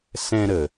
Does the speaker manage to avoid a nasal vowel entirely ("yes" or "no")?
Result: no